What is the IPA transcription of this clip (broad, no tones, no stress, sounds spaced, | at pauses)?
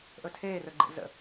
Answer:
ʔ ɵ tʰ eː r ɵ ɡ͡ǃ ḛ z ə̰